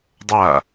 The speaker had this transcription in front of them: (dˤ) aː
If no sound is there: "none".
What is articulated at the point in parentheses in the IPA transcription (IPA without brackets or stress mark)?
dˤ